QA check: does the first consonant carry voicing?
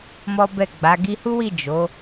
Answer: yes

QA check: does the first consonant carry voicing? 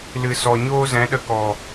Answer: yes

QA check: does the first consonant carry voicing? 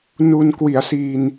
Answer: yes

